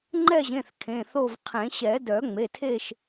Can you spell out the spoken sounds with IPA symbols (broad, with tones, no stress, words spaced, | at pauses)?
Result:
ŋ͡ǃɛ˦˨ʑẽ˩˧˩θ kʰẽ˩˧˩θo˦˨vqʰẽ˨˩˦ ɕɛ˨˩˦ dœ˨˩˦ŋ͡me˩˧˩tʰe˦˨ʃ